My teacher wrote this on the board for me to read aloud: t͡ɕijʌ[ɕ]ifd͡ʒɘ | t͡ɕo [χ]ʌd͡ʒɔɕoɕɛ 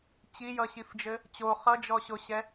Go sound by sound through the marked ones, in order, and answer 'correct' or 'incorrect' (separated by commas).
correct, correct